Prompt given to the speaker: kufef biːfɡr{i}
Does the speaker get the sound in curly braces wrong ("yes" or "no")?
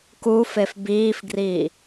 yes